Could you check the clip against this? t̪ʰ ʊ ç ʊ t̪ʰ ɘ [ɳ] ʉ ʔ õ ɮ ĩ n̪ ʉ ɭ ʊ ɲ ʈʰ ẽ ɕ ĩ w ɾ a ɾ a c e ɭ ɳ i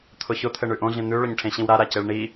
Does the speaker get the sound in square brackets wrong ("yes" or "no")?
no